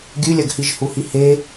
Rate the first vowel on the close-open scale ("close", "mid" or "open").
close